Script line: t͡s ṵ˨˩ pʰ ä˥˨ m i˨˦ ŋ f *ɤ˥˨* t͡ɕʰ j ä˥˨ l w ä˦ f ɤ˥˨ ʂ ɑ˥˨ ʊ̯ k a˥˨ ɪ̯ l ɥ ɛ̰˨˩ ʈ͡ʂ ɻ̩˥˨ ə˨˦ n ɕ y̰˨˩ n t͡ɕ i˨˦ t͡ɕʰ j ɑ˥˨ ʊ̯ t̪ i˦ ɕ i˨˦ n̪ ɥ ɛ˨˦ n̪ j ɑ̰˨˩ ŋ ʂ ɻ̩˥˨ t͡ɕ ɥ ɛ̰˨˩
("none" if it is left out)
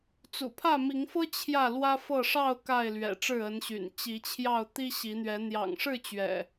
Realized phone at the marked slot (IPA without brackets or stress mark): ɤ˦